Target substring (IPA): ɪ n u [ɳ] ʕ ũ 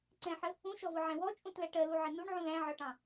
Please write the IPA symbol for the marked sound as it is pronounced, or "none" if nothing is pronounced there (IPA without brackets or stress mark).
ɳ